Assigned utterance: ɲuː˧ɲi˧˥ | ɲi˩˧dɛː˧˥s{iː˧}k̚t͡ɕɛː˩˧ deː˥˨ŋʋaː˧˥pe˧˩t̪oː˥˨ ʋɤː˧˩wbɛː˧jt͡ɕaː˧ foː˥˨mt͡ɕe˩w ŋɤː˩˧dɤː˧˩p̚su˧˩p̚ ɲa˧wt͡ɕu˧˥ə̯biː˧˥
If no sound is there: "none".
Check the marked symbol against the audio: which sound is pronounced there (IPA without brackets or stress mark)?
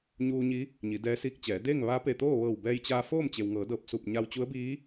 iː˧